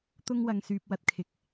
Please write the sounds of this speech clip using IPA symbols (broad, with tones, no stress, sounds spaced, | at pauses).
t̪ ʊ˧ ŋ w ɐ˨ ŋ s yː˨ p̚ w ɐ˨ t̚ kʰ ɪ˨˥ k̚